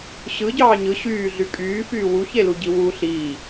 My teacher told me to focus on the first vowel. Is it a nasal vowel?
no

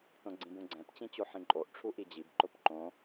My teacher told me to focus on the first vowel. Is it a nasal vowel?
yes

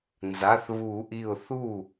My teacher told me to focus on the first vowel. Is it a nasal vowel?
no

